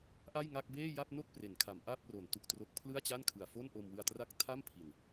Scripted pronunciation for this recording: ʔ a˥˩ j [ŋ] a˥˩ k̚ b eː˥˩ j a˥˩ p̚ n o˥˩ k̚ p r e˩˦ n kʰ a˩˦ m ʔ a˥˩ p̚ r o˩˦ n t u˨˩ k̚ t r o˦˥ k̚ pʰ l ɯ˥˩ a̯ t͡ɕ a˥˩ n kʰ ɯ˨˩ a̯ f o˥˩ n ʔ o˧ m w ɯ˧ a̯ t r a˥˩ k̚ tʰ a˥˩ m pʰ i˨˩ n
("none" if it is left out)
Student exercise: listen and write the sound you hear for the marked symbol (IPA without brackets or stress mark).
ŋ